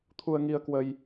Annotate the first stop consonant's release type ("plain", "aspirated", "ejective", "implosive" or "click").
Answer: aspirated